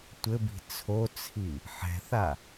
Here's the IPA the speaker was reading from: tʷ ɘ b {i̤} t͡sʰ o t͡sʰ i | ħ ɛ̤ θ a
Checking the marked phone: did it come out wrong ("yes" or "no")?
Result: no